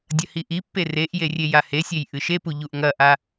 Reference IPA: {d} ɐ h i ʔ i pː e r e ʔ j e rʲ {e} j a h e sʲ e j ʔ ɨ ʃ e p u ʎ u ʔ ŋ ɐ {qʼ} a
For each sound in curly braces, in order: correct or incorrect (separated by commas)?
incorrect, correct, incorrect